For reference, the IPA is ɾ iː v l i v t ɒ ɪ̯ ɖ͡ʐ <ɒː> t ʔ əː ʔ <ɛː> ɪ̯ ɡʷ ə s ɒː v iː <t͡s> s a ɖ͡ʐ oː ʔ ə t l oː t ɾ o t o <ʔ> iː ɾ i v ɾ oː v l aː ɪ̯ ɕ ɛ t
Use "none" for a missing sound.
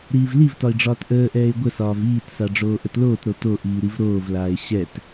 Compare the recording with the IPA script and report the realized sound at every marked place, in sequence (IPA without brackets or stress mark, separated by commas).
ɒː, ɛː, t, ʔ